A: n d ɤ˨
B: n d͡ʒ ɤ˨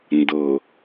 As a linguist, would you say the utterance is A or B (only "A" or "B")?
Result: A